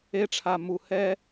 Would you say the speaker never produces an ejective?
yes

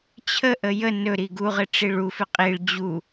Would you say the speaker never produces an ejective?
no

